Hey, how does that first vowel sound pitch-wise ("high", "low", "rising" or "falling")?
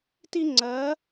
high